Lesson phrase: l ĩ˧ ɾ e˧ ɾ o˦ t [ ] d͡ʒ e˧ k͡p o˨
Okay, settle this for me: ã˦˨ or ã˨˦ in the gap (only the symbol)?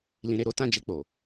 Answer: ã˦˨